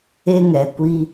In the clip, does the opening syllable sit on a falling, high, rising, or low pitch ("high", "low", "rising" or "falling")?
high